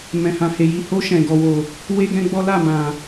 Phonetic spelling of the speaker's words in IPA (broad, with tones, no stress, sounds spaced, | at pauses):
m ɛ̃˨ h ã˨ h e˨ j i˨ h o˧ ʃ ɛ̃˨ ɡ ɔ˨ w o˨ | w e˦ ɡ ɛ̃˦ ɡ͡b ɔ˦ l a˦˨ m ã˨